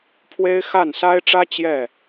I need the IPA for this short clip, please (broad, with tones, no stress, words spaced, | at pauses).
pʰwe˥ɪ̯ xa˥˩nsa˥ɪ̯ʈ͡ʂä˥ t͡ɕjɛ˥˩